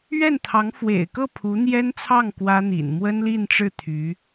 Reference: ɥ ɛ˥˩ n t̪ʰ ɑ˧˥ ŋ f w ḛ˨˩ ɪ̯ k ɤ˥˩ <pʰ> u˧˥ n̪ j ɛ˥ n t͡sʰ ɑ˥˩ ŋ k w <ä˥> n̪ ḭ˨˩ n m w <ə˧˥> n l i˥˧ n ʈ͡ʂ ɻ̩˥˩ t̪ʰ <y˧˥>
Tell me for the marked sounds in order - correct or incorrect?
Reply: correct, correct, incorrect: ə˥, correct

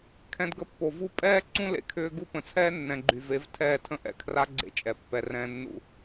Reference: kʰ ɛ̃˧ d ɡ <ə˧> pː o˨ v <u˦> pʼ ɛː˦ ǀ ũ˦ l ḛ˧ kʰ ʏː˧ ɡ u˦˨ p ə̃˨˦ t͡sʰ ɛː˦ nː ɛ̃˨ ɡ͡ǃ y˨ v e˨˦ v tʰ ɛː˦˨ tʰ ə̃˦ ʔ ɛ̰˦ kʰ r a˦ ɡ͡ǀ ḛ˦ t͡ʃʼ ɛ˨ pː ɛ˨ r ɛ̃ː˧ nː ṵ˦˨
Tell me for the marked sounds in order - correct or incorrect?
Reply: correct, correct

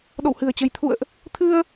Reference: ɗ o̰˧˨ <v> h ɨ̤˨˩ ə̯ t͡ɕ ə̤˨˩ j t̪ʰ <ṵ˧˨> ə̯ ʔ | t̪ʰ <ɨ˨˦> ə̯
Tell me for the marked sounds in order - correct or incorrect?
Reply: incorrect: w, correct, incorrect: ɨ˧

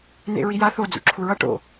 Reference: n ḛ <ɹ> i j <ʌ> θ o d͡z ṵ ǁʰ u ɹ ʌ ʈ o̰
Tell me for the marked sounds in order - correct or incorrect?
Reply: correct, incorrect: a

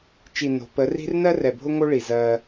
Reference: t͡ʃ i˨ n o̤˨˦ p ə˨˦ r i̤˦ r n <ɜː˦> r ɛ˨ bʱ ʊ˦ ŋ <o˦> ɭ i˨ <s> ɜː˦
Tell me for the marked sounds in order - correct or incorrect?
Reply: incorrect: ɜ˦, correct, incorrect: z

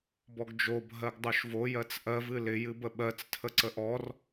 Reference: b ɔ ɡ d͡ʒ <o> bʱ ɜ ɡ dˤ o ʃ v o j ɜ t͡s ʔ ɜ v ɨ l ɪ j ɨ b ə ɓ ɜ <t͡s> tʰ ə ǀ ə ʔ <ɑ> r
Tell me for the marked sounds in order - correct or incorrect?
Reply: correct, correct, incorrect: ɔ

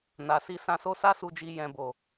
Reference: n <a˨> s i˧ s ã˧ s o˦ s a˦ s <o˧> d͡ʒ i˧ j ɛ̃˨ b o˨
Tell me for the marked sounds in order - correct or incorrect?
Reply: correct, incorrect: u˧

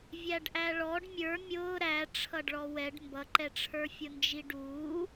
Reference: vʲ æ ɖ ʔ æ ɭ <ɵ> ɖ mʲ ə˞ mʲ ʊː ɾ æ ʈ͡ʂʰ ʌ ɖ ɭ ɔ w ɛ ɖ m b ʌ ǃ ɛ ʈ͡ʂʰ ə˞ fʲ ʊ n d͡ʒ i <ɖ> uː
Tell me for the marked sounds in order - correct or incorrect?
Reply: incorrect: ɔ, correct

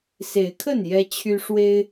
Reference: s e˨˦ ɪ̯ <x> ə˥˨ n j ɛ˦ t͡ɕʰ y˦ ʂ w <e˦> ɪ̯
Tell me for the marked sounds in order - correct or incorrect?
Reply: incorrect: kʰ, correct

